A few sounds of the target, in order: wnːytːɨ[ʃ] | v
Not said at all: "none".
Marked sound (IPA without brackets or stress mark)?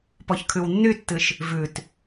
ʃ